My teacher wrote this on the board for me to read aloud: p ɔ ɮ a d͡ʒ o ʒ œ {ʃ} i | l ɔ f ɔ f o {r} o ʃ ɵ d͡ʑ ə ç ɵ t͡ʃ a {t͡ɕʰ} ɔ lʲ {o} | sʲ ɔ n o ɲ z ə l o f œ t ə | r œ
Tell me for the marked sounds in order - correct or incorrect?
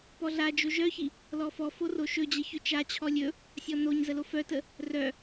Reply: incorrect, correct, correct, incorrect

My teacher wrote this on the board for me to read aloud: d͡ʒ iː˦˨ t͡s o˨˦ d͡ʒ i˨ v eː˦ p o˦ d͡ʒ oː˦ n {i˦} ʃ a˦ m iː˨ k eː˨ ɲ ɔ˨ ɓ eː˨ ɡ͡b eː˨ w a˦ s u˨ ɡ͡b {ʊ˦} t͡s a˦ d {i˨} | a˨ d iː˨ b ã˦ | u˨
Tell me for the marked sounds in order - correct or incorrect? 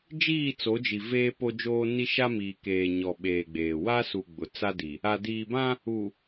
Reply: correct, incorrect, correct

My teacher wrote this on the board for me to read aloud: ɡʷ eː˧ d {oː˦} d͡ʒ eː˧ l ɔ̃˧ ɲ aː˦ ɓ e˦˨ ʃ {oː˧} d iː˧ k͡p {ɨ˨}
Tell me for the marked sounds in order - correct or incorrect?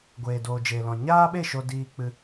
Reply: incorrect, incorrect, incorrect

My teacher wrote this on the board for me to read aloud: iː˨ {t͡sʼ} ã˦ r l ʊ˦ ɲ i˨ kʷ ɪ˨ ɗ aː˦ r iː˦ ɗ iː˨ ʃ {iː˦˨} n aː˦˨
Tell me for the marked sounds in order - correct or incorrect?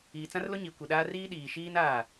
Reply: incorrect, incorrect

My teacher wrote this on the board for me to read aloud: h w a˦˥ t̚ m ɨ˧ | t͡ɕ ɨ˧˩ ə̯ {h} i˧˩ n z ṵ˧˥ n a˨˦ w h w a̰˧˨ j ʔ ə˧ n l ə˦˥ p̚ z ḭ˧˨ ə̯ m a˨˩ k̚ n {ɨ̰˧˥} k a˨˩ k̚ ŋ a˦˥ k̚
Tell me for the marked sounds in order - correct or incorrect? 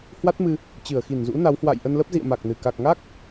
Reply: incorrect, incorrect

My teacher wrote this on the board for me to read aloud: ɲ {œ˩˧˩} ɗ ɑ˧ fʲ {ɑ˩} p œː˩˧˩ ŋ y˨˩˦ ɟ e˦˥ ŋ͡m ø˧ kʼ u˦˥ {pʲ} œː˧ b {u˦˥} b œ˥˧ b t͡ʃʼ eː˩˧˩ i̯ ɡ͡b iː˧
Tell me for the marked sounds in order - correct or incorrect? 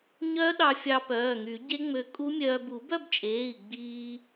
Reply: incorrect, incorrect, incorrect, incorrect

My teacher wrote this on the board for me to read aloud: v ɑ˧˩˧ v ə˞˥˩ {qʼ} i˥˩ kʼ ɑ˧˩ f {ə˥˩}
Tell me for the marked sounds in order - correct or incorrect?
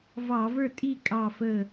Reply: incorrect, incorrect

